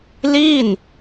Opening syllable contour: falling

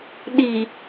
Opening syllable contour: low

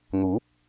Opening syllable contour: rising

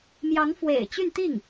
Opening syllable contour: rising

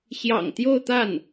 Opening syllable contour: low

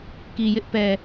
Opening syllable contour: low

